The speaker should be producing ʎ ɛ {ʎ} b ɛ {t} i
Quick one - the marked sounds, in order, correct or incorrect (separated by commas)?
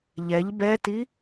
correct, correct